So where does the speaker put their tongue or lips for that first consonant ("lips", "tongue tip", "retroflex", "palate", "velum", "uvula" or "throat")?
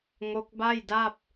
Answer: velum